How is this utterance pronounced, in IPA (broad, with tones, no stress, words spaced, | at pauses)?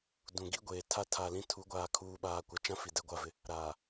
dũ˨ɡi˦ɡʷeː˨tʰa˦ tʰa˨lĩ˦tʰu˨˦ ɡʷaː˨kʰuː˨ɓaː˨ kʷa˨t͡ʃã˦ fi˨dɛ˦ɡʷa˦˨vɪ˦ | ɾaː˨